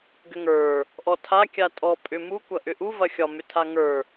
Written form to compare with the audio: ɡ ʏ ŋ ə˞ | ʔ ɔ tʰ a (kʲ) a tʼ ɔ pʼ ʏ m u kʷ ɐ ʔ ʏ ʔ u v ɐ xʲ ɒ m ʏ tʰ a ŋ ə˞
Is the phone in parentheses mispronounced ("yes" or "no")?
no